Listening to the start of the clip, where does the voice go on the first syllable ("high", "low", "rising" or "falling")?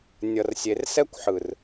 low